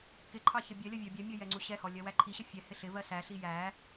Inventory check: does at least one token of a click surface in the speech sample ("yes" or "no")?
yes